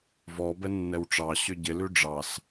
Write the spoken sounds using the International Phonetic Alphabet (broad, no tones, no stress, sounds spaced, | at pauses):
v ɔ b ɛ nː ɛ w ʈ͡ʂ ɑ ɕ ʏ ɟ ɪ l ʉ ɖ͡ʐ ɑ s